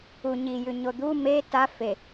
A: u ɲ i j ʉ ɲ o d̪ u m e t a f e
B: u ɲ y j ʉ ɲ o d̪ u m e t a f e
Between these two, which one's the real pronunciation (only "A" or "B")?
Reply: A